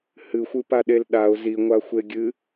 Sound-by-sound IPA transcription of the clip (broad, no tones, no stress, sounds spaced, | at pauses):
h ɨ xʷ ɨ p a ɗ e l ɗ a ʊ̯ z i ŋʷ a xʷ e ɡʲ ɨ